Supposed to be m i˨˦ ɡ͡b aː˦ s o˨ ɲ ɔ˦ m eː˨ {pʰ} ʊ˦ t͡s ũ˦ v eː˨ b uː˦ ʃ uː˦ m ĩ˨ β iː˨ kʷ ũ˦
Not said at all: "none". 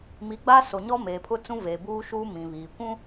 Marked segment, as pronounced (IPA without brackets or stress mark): pʰ